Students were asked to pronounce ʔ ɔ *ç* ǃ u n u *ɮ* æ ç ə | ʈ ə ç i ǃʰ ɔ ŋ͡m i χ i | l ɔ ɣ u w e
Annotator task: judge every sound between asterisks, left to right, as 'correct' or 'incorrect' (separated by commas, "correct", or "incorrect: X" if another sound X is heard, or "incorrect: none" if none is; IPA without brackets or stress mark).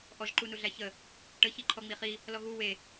incorrect: ʒ, correct